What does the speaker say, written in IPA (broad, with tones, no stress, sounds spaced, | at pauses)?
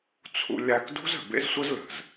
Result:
t͡sʰ ṵ˧ lʲ a˧ k d ṳ˦ z ə̤˨ b ḛ˦ z sʷ ə˦ z l ə̤˨ z